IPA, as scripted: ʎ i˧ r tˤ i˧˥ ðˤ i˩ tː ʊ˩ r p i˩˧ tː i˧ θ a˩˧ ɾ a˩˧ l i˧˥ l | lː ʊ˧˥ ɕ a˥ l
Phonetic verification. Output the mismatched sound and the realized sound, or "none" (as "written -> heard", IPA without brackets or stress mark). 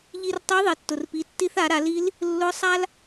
ɕ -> sˤ